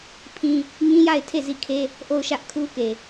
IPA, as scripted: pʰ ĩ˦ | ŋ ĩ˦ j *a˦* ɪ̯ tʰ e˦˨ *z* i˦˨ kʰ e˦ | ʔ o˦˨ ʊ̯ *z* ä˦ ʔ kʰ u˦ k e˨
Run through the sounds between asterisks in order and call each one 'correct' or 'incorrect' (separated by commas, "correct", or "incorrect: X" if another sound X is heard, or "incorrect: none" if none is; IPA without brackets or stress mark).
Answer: incorrect: a˦˨, correct, incorrect: ʃ